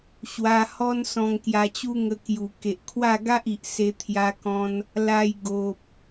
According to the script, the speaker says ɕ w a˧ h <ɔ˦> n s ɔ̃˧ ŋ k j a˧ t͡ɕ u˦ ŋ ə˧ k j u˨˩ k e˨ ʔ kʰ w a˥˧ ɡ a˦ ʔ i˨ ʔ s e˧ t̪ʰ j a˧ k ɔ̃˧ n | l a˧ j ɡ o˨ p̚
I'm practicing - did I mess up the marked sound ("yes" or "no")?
no